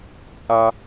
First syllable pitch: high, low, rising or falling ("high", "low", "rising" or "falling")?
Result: high